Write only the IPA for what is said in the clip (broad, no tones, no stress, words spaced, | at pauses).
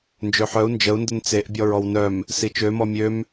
nd͡ʒøħœu̯ nd͡ʒəu̯ndən t͡seʔbʲɔɹ ɔwnœm | sit͡ʃømɔ mʲøm